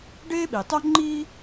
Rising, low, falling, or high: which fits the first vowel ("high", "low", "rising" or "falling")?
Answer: high